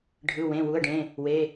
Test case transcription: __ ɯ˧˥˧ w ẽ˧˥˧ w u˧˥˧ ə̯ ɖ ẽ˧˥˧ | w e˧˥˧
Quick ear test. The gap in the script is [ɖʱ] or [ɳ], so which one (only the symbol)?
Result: ɖʱ